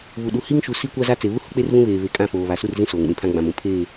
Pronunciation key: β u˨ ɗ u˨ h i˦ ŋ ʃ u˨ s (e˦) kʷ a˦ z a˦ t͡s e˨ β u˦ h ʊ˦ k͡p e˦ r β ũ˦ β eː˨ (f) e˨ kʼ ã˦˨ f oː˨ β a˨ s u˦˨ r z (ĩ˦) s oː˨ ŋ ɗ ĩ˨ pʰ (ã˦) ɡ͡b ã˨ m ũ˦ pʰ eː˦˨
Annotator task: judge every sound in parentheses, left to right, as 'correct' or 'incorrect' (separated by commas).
incorrect, incorrect, correct, correct